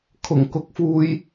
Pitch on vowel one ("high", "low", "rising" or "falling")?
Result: low